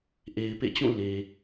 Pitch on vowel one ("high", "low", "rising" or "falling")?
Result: low